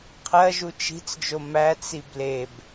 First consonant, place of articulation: uvular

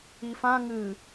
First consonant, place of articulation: labial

